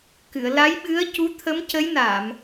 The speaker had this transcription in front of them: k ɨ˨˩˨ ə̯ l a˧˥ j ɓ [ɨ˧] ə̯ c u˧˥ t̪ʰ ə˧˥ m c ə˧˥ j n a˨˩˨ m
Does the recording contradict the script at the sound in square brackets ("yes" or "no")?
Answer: yes